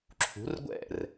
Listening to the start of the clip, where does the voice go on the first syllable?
rising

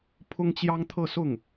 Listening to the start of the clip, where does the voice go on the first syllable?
high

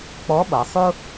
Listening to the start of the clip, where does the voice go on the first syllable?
rising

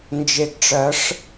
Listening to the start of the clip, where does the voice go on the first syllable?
low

